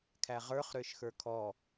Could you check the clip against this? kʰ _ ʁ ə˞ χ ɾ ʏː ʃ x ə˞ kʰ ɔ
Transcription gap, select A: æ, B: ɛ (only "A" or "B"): A